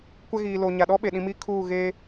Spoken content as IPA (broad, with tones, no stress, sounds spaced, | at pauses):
kʷ ɛ˦ ɣ iː˨ l o˨ ɲ a˨ ɗ ɔ˦ ɓ e˨ ɗ ĩ˨ m i˦ kʰ uː˦˨ ɣ eː˦